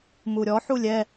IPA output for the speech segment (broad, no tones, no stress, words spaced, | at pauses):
muɾʲɔ ħulʲɛ